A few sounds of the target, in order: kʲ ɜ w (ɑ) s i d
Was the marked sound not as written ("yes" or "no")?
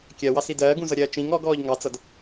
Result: no